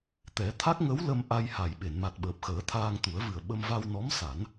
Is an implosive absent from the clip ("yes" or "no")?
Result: no